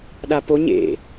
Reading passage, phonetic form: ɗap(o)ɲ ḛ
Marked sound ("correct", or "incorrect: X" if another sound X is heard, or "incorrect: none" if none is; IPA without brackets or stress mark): correct